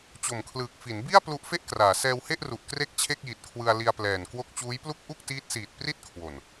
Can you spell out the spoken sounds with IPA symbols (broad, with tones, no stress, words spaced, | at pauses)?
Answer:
t͡ɕo˨˩mkʰlɯː˨˩k̚ fi˩˦nbi˥˩a̯ plu˦˥ʔfe˥˩ʔkraː˩˦ sɛː˧whe˥˩ʔru˨˩ʔ kre˥˩k̚t͡ɕʰe˥˩k̚ji˨˩t̚kʰwɯ˧a̯ li˧a̯plɛː˨˩n kwo˦˥k̚t͡ɕuː˦˥jplu˥˩k̚ ʔu˥˩k̚tiː˦˥t̚siː˨˩t̚ pri˥˩t̚kʰwo˨˩n